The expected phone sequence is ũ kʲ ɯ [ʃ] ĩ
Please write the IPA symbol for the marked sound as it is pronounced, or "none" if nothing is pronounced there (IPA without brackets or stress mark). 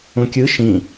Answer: ʃ